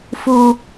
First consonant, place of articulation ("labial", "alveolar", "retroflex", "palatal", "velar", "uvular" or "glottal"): labial